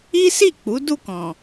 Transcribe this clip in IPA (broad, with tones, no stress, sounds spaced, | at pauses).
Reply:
i˦ s i˦˨ k͡p u˨˦ d u˦˨ k ɔ̃˨